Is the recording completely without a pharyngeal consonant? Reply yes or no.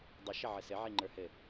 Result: no